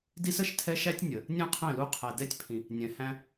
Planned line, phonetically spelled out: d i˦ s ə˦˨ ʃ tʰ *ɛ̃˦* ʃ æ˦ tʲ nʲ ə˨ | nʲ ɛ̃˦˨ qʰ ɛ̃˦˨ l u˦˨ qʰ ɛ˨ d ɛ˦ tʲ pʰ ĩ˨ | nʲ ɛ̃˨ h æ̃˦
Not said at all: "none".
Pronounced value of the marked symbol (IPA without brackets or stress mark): ɛ˦